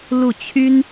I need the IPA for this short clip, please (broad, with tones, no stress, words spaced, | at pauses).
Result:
lu˥˩t͡ɕʰy˥n